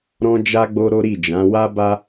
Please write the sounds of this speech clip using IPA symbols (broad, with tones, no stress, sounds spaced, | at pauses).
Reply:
ɾ ɔ̃˧ d͡ʒ a˧ ɡ͡b o˧ ɾ o˦ ɾ i˦˨ d͡ʒ ã˨˦ w a˦ b a˦